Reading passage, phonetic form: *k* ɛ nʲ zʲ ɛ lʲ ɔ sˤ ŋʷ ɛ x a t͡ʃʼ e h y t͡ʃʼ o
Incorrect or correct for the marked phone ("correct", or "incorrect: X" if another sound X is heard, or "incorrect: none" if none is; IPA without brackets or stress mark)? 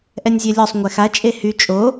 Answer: incorrect: ʔ